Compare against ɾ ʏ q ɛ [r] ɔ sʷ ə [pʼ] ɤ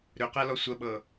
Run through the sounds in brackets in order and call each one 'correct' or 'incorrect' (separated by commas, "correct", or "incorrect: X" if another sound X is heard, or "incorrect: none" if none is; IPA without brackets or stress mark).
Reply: incorrect: l, incorrect: ɓ